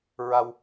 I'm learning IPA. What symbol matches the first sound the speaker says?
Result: ɹ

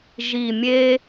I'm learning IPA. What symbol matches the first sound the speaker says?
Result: ʒ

